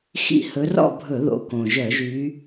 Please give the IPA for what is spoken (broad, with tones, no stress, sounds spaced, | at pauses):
x ḭ˧˩˧ h ɵ˨˦ r ɔ̰˥˨ bʱ ɵ˧˩˧ ð o̰˨˦ k õ˩ ʒ œ˧˩˧ ʒ y˨˦